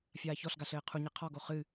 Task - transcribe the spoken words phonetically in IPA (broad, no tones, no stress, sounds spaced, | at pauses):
fʲ aː ç ɔ ɬ ɡ a ɬ ɘː qʰ u ɲ e qʰ ɔ ɡ o χ ɨ